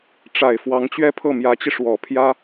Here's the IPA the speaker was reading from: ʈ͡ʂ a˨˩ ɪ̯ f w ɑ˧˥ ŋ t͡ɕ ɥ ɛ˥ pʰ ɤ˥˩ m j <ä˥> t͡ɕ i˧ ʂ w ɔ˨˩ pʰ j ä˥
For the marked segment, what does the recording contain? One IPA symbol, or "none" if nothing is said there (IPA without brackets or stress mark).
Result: ä˧˥